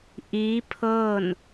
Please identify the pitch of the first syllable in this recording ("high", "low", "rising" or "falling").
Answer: rising